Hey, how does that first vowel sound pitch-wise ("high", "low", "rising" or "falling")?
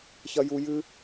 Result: high